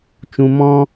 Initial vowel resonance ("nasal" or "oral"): nasal